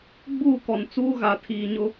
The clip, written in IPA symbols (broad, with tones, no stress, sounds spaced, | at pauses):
ɡ͡b uː˦˨ k ɔ˨ n t͡s uː˦ ɣ a˨ tʰ iː˨ ɲ ʊ˦